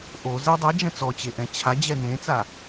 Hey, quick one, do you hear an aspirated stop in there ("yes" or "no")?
yes